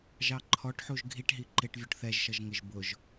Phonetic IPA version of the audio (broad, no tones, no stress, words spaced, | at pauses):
ʒɑǃʰɔʈħuʒ ɡʱiʈɦi ǃɪʈ vʲuʈθɛʒʃʌʒŋɪʒ bʊʒ